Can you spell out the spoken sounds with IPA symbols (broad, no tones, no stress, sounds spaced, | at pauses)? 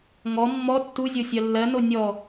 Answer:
ŋ ɔ mː ɔ tː u zʲ o sʲ ɜ lː ɜ n o nʲ ɔ